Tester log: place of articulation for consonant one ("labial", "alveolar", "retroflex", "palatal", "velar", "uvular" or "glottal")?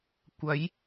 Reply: velar